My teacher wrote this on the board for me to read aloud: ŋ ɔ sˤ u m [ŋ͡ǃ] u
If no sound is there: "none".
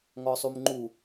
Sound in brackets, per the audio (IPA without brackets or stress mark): ŋ͡ǃ